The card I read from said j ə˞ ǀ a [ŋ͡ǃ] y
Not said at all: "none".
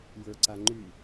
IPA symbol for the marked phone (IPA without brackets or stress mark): ŋ͡ǃ